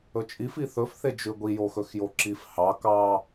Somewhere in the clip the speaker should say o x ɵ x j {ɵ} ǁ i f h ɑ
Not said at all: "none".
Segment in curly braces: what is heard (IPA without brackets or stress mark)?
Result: o